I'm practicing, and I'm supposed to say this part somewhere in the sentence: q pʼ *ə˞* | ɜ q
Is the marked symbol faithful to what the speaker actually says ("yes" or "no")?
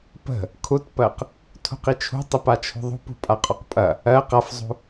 no